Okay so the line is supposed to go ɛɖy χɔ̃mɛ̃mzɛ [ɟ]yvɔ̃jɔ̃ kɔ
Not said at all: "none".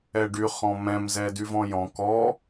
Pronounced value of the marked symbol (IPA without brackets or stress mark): d